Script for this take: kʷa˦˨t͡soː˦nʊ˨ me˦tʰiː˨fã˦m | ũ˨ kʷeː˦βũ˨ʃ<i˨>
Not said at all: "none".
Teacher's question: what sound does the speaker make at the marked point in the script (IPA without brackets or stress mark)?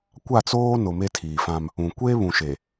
e˨